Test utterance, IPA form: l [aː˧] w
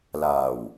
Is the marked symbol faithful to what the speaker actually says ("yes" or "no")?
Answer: no